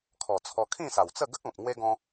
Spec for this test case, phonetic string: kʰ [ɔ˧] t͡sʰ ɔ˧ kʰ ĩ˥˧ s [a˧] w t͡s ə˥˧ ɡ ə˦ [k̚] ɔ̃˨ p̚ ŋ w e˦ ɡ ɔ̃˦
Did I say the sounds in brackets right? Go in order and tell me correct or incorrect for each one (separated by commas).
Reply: incorrect, incorrect, correct